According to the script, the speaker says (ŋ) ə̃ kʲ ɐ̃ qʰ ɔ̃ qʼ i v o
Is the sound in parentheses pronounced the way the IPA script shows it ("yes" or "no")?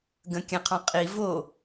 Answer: no